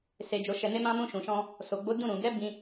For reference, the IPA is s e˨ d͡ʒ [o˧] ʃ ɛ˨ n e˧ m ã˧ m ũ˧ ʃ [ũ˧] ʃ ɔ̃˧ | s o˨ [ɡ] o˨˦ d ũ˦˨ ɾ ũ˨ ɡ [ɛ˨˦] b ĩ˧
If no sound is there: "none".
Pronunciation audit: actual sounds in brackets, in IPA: o˨, ũ˨, ɡ͡b, ɛ˨˦

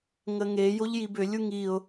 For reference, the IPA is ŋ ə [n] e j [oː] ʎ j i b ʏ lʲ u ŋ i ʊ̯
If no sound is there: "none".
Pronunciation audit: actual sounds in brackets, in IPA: ŋ, o

